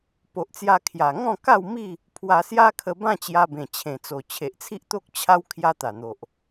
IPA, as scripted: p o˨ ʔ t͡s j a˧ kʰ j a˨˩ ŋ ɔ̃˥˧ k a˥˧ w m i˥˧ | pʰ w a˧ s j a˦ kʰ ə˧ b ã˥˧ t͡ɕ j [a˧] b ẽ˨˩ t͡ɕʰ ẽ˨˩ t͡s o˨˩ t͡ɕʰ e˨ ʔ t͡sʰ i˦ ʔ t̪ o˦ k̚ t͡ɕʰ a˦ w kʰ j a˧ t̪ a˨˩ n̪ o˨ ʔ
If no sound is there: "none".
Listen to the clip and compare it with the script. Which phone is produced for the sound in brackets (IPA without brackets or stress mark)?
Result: a˧